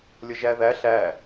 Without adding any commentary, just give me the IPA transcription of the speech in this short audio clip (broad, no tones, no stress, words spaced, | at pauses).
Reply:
lʲʌʒæðæ ɬæ